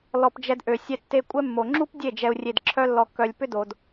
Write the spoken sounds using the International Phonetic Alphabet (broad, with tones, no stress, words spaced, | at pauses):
lɔ˨p d͡ʒɛ˧dʔø˨ sʲɛ˧tːe˧ kʷʼɛ˦mːo˨ ŋ͡ǁu˦p dʲe˦˨d͡ʒɛ˨u̯ rʲe˨dǁʰœ˧lːɔ˨kːœ˨lʲ pʏ˦do˨d